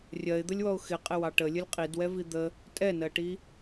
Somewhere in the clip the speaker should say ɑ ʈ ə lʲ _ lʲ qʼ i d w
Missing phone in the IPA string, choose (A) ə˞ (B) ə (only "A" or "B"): B